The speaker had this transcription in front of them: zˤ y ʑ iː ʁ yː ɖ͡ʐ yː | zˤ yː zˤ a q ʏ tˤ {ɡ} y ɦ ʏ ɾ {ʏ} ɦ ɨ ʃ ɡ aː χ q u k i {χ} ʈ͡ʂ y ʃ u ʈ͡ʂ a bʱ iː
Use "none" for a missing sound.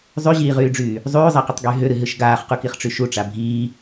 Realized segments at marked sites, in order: ɡ, ɨ, χ

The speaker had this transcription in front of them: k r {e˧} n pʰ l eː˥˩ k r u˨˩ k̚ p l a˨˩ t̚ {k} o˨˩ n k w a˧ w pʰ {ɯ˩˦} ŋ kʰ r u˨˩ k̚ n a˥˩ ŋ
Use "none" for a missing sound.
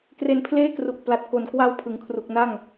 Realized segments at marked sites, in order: e˧, k, ɯ˩˦

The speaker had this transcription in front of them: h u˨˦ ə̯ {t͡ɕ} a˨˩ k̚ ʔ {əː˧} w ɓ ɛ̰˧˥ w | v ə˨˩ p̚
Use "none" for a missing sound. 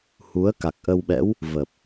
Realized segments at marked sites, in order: k, ə˧

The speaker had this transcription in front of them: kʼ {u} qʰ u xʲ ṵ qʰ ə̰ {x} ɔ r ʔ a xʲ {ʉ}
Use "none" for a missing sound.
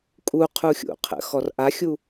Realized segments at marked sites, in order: u, x, u

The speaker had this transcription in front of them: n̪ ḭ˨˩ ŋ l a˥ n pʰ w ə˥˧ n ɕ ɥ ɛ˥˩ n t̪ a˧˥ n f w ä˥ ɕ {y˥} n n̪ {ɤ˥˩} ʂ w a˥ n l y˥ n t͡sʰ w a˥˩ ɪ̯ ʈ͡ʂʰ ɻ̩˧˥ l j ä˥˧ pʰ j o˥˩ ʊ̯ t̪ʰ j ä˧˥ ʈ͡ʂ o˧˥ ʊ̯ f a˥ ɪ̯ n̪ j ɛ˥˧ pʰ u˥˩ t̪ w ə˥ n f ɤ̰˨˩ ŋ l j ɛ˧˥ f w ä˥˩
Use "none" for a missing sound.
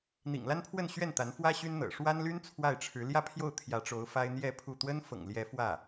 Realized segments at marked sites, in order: y˥, ɤ̰˨˩

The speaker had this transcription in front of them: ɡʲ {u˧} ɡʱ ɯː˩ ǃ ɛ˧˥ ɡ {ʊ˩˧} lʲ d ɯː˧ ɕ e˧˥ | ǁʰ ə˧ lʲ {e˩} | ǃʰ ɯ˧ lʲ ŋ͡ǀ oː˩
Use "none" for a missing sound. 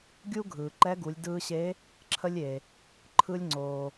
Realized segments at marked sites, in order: u˥, u˩˧, e˩

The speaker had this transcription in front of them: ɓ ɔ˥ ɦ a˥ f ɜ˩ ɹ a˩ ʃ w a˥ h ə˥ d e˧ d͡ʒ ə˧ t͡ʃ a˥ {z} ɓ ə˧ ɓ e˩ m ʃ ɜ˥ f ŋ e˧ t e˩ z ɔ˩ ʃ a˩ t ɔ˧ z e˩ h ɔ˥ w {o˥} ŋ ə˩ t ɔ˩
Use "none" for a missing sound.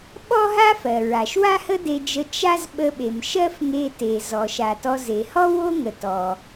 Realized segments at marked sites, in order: z, o˥

